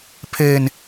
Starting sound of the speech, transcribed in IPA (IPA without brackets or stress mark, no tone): pʰ